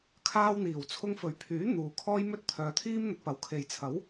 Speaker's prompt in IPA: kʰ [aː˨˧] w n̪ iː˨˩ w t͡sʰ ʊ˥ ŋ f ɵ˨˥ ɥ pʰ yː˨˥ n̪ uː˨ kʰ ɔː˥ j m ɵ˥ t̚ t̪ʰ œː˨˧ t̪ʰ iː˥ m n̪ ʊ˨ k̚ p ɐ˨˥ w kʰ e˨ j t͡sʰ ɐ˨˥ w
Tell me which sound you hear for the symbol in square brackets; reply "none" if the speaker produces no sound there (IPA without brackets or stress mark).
aː˧